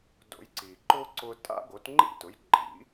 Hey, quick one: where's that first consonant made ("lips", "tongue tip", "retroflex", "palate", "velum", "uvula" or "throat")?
tongue tip